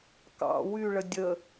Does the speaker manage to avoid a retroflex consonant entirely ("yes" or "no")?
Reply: no